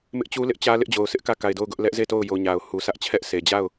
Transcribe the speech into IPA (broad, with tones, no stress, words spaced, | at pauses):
mɪ˦ʔt͡ɕu˦lɪ˦ʔt͡ɕä˦ lɪ˦ʔd͡ʑo˨ʊ̯sɪ˦ʔkä˦˨ ka˨ɪ̯do˦˨ʊ̯ ɡʊ˦ʔ lɛ˦ʔze˦˨to˦˨ʊ̯jo˨ ɲa˨ʊ̯ hu˨sʰä˦ʔt͡ɕʰɛ˦ʔ sʰe˨ d͡ʑa˦˨ʊ̯